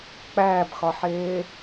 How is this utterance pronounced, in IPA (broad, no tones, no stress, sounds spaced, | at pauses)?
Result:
k͡p æː b x ɒ ħ eː